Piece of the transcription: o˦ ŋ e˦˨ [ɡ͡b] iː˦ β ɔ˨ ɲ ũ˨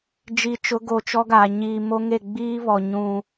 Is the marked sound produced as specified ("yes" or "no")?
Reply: yes